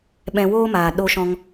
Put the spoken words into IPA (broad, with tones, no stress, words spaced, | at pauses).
ɓɛ̃˧woː˦maː˨ ɗo˧ʃɔ̃˧ŋ